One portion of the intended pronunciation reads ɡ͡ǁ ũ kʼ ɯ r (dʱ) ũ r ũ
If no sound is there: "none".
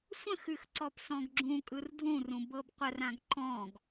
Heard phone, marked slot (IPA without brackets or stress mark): dʱ